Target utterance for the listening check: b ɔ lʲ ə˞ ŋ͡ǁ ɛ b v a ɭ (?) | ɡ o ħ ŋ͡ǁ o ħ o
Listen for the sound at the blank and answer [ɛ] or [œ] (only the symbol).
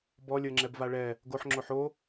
ɛ